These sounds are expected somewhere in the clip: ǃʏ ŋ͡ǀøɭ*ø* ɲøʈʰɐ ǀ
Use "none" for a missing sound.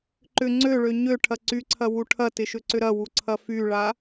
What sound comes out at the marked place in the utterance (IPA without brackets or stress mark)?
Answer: ø